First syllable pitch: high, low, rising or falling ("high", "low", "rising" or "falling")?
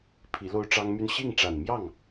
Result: rising